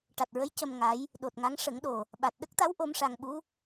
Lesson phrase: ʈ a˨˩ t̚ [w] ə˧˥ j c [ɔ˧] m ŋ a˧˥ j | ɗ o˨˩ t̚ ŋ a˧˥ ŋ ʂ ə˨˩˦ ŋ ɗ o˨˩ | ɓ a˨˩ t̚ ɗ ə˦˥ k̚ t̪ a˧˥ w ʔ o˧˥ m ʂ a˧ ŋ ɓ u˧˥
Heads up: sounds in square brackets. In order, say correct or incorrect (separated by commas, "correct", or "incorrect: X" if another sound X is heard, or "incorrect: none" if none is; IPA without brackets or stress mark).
incorrect: ɹ, incorrect: ə˧